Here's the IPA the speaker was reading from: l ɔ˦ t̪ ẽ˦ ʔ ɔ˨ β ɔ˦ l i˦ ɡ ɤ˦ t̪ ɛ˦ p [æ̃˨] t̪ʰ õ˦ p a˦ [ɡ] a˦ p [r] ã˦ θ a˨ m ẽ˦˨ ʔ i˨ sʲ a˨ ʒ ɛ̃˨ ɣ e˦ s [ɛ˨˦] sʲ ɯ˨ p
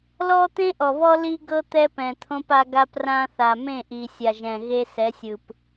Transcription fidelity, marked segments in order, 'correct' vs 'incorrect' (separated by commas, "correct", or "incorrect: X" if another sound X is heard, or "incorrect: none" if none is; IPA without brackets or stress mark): incorrect: ɛ̃˨, correct, correct, correct